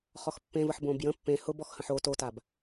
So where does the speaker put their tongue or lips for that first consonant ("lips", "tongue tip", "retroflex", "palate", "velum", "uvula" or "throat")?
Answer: uvula